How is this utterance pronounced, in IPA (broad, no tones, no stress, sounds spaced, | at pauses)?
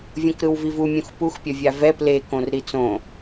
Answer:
vʲ õ k ɾ ɯ w v i v u mʲ ũ x p u x pʲ ʌ vʲ a v ɛ p l e k õ r ɾ i t͡s õ